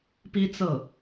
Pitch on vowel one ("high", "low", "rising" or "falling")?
high